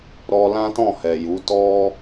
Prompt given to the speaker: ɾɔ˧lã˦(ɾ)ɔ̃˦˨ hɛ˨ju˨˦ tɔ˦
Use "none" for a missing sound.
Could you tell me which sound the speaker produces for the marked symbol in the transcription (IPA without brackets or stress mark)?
t